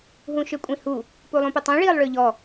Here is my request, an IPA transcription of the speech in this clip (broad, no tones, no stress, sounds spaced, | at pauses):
ɦ ũ ʃ ø kʷʼ ĩ h u | p u lˠ ũ p ʏ tˤ ũ ɭ iː lˠ ɭ ø ʎ ɔ